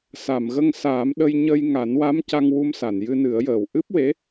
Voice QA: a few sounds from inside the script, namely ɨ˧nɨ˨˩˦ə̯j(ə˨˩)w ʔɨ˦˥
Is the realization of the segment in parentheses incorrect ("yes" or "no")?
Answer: yes